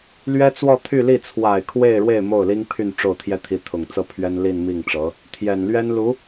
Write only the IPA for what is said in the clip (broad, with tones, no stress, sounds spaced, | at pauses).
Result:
l ɥ ɛ˥ t͡s w ɔ˥˧ t̪ʰ y˥˧ l i˥˩ t͡sʰ w a˨˩ ɪ̯ kʰ w e˥˧ ɪ̯ ɻ w e˥˧ ɪ̯ m o˥˩ ʊ̯ l i˥ ŋ pʰ y˥˧ n ʈ͡ʂ o˥˩ ʊ̯ t̪ʰ j ɛ˥ t̪ʰ i˧˥ t̪ʰ ʊ˨˩ ŋ t͡s ɤ˥ pʰ ɥ ɛ˥ n l i˥˧ n m i˥˩ ŋ ʈ͡ʂ ɤ˧˥ | t̪ʰ j ɛ˨˩ n l ɥ ɛ˥ n l u˧˥